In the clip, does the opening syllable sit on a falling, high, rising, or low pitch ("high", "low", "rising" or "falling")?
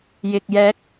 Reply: low